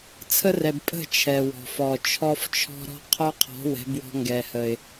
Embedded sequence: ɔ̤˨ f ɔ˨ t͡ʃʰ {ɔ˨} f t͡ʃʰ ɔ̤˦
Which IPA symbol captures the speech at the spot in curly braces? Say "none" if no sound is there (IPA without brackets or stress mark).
ɔ˦